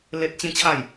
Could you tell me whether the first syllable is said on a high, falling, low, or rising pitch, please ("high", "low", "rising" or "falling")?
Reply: high